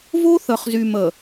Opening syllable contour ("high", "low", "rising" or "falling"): high